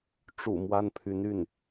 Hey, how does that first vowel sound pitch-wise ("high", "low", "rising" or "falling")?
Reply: low